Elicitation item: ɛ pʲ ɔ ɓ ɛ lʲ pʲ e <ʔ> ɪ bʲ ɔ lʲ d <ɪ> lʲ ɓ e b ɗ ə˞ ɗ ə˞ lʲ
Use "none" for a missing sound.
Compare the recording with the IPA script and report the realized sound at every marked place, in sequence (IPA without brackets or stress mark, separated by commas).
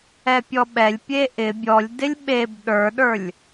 ʔ, ɪ